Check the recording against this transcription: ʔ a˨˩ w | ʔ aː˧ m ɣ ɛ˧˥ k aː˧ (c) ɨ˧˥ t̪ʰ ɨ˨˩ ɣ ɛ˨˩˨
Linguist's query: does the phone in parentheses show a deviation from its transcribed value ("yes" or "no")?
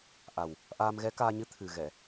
yes